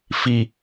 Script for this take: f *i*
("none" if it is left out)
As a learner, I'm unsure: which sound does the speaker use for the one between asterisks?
i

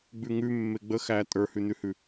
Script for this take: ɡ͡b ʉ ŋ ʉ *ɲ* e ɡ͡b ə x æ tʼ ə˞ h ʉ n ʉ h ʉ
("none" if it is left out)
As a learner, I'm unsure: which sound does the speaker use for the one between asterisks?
mː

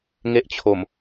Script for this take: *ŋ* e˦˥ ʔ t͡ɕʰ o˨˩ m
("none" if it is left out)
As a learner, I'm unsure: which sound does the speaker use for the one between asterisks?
ŋ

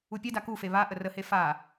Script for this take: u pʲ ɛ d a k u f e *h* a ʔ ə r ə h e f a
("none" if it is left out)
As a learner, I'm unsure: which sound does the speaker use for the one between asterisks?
β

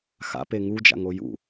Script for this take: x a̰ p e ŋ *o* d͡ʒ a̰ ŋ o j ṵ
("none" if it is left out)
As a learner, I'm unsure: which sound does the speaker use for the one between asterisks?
u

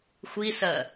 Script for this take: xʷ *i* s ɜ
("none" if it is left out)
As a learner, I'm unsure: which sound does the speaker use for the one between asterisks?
i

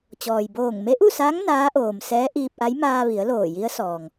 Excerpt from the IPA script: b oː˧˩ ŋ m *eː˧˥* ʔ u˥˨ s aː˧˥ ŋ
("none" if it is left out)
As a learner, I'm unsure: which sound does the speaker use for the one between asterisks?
e˧˥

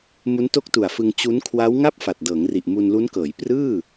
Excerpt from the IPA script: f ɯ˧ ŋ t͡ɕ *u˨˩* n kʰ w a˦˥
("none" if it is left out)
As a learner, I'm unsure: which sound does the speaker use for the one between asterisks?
u˦˥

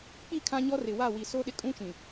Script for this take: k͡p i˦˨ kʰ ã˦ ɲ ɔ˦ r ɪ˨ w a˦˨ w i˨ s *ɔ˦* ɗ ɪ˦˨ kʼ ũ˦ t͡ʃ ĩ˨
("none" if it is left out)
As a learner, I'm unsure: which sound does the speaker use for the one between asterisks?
o˦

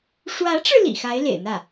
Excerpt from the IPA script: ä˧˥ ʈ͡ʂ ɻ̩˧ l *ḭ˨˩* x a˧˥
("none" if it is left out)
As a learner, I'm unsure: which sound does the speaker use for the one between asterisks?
ḭ˨˩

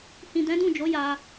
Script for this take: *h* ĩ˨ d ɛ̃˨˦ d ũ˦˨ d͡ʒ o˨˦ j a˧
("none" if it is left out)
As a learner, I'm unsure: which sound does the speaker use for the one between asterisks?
h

